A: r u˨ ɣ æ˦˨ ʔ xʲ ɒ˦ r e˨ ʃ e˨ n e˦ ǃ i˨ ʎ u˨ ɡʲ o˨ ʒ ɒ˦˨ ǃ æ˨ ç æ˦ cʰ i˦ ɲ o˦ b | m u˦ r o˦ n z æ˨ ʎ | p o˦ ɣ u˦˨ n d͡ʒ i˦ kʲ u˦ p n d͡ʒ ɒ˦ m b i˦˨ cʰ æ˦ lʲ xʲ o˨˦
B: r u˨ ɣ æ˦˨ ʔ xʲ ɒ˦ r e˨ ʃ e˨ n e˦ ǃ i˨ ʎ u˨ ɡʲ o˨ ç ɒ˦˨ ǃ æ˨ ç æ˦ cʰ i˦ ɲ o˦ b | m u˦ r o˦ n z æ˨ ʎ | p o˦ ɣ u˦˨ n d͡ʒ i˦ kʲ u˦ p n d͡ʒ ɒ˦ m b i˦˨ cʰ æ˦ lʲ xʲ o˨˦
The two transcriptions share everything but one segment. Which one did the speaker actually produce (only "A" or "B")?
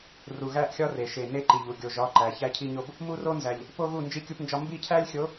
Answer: A